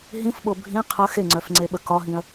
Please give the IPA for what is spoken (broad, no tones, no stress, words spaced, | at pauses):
ɦĩfɓo bʱĩ qʰə xeŋ͡ǀœfŋ͡ǀeɓə kɒɦĩɐ̯